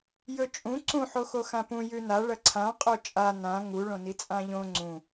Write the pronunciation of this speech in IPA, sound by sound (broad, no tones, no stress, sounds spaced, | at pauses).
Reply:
j ɵ t͡ʃʼ ũ ǀ ũ ħ o x o x ã p ũ j ʉ n a ɭ ɐ ǀʰ ã qʼ o t͡ʃʼ a n ã ŋ u ɭ õ n i t͡sʼ ã ʎ õ ŋ͡ǀ ũ